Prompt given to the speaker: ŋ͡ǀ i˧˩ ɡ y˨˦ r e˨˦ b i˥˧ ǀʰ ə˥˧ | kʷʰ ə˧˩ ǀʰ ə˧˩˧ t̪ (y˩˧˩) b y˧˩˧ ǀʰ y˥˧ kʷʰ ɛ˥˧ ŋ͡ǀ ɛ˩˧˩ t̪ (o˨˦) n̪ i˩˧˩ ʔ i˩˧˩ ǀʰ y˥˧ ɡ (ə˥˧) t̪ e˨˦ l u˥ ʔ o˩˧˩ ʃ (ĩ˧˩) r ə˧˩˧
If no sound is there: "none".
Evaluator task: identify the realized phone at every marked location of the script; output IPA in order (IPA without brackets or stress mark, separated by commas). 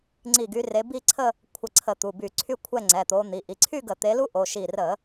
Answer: u˩˧˩, o˨˦, ə˧˩˧, i˧˩